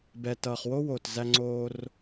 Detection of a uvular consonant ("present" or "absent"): present